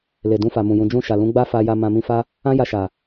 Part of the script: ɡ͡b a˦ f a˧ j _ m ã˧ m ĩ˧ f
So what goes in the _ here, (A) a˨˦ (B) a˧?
B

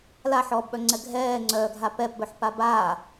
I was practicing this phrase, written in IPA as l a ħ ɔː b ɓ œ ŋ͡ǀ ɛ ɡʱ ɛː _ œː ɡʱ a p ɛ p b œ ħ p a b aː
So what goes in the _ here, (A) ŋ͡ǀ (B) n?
A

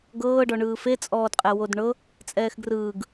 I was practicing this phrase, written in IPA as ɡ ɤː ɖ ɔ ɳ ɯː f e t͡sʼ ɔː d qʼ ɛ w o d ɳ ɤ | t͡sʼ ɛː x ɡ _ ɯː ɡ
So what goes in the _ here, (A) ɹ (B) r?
B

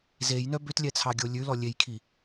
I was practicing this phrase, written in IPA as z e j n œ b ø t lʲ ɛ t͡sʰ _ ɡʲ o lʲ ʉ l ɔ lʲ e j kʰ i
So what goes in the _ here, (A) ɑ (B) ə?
A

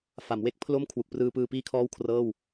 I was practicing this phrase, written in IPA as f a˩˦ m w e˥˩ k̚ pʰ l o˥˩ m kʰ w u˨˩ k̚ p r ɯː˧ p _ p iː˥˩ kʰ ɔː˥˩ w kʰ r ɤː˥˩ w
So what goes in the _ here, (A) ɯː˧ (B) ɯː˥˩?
A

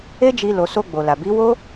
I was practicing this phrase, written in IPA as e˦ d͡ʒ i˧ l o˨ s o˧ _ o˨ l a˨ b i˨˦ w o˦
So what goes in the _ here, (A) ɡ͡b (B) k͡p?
A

